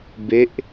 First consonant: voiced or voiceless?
voiced